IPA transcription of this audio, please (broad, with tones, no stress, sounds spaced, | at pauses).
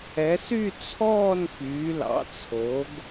ɛ˩˧ s y˦˨ t͡sʰ ɔː˦˨ n f yː˩˧ l ɑ̰˩˧ t͡sʰ o˩˧ ɡ